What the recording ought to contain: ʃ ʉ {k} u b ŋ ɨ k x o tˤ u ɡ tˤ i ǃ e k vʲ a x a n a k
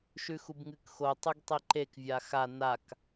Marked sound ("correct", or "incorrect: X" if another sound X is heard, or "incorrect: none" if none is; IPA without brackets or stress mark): incorrect: x